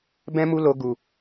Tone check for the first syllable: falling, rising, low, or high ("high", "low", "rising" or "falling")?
high